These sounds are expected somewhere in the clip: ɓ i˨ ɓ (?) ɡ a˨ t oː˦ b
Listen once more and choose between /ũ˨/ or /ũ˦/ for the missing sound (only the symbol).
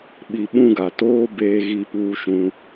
ũ˦